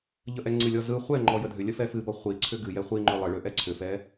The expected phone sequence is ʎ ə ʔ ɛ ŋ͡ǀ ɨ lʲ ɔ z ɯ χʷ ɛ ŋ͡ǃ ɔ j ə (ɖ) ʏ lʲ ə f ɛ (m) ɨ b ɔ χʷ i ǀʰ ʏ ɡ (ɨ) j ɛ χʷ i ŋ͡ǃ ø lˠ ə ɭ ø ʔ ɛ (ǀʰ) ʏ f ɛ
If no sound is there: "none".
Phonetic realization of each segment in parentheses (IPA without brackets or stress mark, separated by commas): dʱ, f, ɨ, ǀʰ